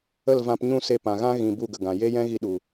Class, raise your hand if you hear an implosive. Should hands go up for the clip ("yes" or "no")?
yes